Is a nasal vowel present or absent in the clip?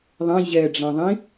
present